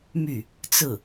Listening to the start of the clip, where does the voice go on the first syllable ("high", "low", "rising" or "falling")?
falling